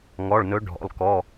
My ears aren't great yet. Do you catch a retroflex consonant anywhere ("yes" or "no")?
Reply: yes